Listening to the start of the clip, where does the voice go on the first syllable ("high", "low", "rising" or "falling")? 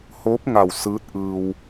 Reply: rising